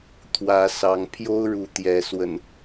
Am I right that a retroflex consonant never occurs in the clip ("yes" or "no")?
no